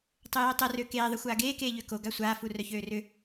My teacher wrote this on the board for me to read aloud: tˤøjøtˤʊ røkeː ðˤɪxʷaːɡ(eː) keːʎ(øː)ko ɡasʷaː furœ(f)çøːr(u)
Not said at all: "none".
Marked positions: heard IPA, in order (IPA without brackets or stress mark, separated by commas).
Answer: eː, ø, none, ʏ